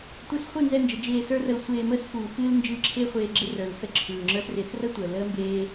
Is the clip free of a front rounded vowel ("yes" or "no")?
yes